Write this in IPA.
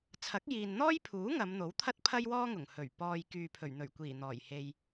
t͡sʰ ɐ˨˥ k̚ j iː˨ n n̪ ɔː˥ j pʰ uː˨˥ ŋ ɐ˨˧ m n̪ o˨˥ w t̪ʰ ɐ˥ t̚ pʰ ɐ˥ j w ɔː˥ ŋ ʊ˨˩ ŋ h ɵ˨˩ ɥ p ɔː˨ j k yː˨ pʰ ɵ˨˩ ɥ n̪ ɵ˨˩ ɥ kʷ iː˨˩ n̪ ɔː˨˩ j h e˨ j

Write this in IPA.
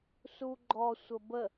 s u ɡ͡ǃ ɔ sʷ ə b ə

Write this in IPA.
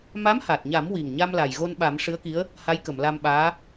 m a˧˥ m h a˨˩ t̚ ɲ a˨˩˦ m w i˨˩ ŋ ɲ a˧ m l a˨˩ j ɣ o˧ n ɓ a˨˩˦ m ʂ ɨ˧˥ ə̯ k i˧˥ ə̯ | h a˧˥ j k ə˨˩˨ m l a˧ m ɓ aː˧˥

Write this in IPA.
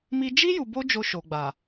m i˧ d͡ʒ i˦ j u˧ b o˦ d͡ʒ o˧ ʃ o˨ ɡ͡b a˨

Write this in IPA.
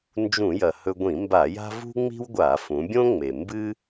n d͡ʒ ũ˧˩˧ j ɐ˩ h ɵ˧ ɡʷ ĩ˧˩˧ m b a˧˩˧ j a̤˥ v ṳ˥ ŋ͡m i̤˥ w ɡʷ a˧˩˧ f ũ˩˧ bʲ õ˥ ŋ͡m e˩ m b ɨ˥

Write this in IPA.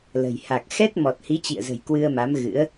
l ə̤˨˩ j h a˨˩ k̚ x ɛ˦˥ t̚ m ɔ˨˩ t̚ h i˨˦ t͡ɕ ḭ˧˨ ə̯ z ə̤˨˩ j k w ɨ˧ ə̯ m a˨˦ m ɣ ɨ̰˧˥ ə̯

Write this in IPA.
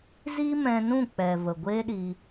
z i˦ m ɛ̃˧ n ũ˦˨ k͡p ɛ˨ v ə˨ ɡʷ eː˦ ɗ i˧

